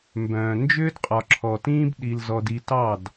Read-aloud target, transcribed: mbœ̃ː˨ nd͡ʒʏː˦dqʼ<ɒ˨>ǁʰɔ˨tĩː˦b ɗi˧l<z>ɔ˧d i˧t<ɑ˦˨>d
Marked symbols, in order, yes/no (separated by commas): yes, yes, yes